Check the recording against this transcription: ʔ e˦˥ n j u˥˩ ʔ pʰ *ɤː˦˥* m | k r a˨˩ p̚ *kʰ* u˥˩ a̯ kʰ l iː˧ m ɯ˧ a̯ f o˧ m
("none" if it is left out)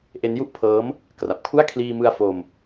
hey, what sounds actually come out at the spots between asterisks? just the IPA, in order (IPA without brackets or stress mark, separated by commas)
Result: ɤː˦˥, kʰ